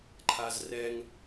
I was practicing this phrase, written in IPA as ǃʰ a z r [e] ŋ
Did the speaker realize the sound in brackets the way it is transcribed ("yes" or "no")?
no